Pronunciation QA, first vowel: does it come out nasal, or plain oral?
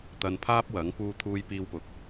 oral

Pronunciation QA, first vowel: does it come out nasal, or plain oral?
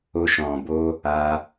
oral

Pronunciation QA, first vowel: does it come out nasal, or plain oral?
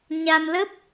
oral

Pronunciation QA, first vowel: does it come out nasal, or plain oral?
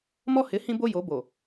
oral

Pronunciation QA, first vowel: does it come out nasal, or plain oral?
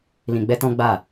nasal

